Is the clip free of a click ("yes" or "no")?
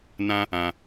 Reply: yes